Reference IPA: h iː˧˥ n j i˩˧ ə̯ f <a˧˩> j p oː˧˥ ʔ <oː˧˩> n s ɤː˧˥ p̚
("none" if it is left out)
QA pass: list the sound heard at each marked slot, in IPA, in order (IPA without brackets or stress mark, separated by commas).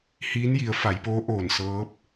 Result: a˩˧, oː˧˩